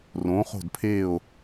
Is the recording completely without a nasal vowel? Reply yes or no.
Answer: no